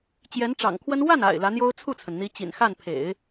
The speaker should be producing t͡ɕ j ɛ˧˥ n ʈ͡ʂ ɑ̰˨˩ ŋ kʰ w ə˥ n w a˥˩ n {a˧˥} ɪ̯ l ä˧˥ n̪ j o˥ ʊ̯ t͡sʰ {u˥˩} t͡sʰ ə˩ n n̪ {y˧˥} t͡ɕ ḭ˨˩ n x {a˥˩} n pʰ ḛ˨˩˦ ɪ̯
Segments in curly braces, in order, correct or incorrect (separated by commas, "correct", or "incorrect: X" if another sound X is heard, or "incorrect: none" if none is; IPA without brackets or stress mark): incorrect: a̰˨˩, correct, incorrect: i˧˥, correct